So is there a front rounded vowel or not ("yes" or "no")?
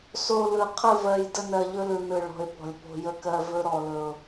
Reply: no